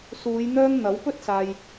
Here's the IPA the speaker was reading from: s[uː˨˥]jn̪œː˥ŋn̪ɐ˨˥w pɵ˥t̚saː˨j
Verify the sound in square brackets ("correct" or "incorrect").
incorrect